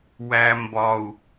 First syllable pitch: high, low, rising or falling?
low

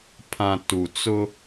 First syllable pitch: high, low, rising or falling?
low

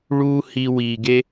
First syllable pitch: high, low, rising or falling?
high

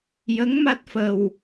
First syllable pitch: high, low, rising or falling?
rising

